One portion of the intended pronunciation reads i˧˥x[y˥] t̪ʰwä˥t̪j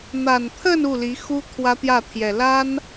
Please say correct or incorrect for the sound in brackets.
incorrect